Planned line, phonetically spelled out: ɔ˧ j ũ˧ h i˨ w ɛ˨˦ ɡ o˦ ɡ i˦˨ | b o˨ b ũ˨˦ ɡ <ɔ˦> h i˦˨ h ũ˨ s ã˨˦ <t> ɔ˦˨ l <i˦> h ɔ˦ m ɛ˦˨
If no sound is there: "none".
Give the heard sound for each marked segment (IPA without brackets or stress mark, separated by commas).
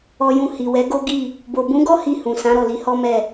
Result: ɔ˦, ɾ, i˨˦